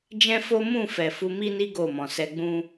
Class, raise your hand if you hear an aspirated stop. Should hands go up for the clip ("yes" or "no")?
no